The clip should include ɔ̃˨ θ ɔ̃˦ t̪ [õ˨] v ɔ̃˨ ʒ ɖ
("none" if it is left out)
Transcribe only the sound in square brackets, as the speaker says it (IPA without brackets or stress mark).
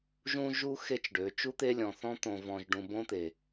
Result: õ˨